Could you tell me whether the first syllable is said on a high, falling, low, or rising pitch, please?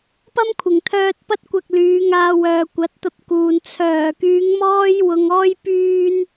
high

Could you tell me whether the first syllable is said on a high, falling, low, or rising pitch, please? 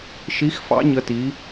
rising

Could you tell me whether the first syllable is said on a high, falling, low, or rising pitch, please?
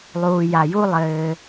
low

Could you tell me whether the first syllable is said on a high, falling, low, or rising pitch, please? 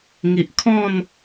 low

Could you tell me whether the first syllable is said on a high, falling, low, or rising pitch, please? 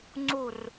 falling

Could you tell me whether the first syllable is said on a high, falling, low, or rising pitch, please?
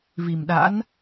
low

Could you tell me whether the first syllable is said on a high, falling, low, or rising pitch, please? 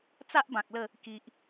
high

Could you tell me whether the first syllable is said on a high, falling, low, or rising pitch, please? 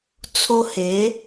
high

